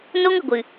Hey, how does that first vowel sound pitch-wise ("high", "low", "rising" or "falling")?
high